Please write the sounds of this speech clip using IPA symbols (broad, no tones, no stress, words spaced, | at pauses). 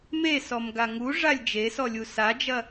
mesɔmɡa ŋuʐalʲ d͡ʒesɔlʲu sad͡ʒɐ